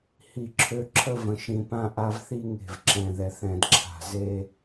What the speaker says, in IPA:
hi˦˨ǁʰø˦ ǁʰə˦və̃˨ʃĩ˨pã˦ ʔa˦vθi˦ŋe̤˨v ǁɛ̃˨ðɛ˨θ ɛ̃˨dǁʰa̤˨ze˦

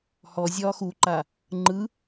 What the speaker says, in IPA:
hɔ zʲɒːxuǃa | ŋ͡ǃɯ

